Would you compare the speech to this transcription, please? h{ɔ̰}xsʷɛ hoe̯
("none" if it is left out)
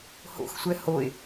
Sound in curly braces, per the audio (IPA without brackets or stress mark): o̰